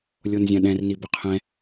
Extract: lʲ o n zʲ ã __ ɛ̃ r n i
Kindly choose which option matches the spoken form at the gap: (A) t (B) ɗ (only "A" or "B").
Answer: B